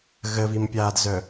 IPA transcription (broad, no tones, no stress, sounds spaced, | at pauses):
ɣ ə v i m pʲ aː d z œ